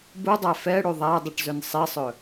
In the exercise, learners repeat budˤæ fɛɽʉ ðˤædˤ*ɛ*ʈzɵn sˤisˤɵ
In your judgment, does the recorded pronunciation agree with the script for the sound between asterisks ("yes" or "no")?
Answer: no